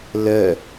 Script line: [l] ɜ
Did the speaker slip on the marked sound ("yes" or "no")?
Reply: no